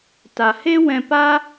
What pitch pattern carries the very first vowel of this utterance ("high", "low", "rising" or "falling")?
low